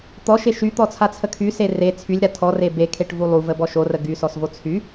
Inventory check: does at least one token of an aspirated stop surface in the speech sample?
yes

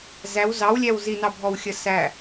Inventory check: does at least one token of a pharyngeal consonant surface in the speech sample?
no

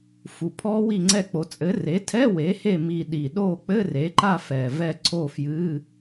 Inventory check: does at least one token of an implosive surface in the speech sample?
yes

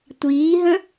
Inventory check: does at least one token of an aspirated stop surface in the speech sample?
no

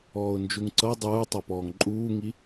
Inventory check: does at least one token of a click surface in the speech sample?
yes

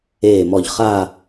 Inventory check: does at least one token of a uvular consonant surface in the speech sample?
yes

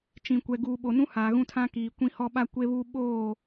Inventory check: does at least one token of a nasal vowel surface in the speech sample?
yes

